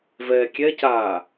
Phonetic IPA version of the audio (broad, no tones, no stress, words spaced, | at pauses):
vɛːkʲɛcaː